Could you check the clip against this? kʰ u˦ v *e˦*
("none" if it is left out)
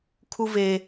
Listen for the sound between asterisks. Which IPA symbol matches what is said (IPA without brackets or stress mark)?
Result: e˦